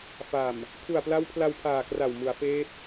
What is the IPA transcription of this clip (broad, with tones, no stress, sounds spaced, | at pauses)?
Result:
f a˨˩ m | kʰ u˨˩ a̯ p l a˦˥ w pʰ l a˧ w pʰ aː˨˩ k r a˨˩ w m u˩˦ a̯ f eː˦˥ p̚